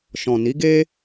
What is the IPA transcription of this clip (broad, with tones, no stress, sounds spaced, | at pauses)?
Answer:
ʃ ɔ̃˨ n i˨˦ ɡ e˦